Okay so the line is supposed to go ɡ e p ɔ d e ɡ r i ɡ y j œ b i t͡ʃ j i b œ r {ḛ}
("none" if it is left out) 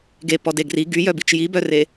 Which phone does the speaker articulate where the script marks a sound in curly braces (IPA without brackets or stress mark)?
e